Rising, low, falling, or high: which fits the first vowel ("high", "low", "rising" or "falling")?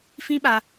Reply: high